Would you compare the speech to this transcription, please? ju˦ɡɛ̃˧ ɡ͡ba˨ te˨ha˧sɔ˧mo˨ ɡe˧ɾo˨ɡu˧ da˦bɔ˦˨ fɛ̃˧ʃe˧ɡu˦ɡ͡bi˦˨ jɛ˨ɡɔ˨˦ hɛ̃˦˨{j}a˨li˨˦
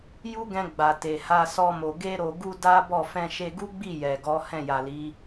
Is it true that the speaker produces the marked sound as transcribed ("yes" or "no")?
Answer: yes